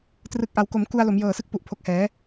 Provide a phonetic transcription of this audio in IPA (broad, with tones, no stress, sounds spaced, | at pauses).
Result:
t r ɯ˨˩ k̚ ʔ a˩˦ w k o˩˦ m k u˧ a̯ l o˩˦ m j ɤː˨˩ s ɯ˥˩ k̚ p u˨˩ ʔ pʰ o˨˩ k̚ h ɛː˩˦